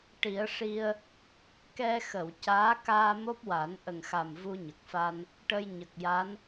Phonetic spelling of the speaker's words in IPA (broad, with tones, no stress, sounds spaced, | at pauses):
ʈ i˨˩˦ ə̯ ʂ i˧ ə̯ | k ɛ˧ x ə˨˩˨ w c aː˧˥ k aː˧ m o˦˥ p̚ w a˨˩˦ n ʔ ə˨˩ ŋ x a˨˩ m v u˧ ɲ ə˨˩ k̚ f a˧ n | ʈ ə˧ j ɲ ə˨˩ k̚ j a˧˥ n